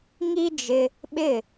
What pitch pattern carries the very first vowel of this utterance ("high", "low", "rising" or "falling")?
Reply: high